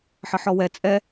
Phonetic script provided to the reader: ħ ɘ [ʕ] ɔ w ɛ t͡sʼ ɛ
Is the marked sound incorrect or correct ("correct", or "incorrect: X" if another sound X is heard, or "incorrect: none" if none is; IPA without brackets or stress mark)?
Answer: incorrect: ħ